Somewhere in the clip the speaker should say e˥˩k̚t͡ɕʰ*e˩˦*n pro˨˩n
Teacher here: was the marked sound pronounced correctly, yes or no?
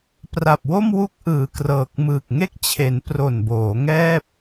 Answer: yes